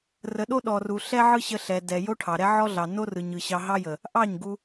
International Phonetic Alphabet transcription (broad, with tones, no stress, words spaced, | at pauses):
rə˨ɗo˦ ɗɔ˨ru˨ ɬɛ˦ʕɯ˦ɕə˧ ɬɛ˨ dɛ˨ jo˦ʈʰɑ˨ɾɛ˦ ʕɔ˦ɮɑ˨ no˦rɯ˨ɲ ɯ˨ɕɑ˧ɦɑ˦jə˨ | ʔɑ˦˨ɲɡu˧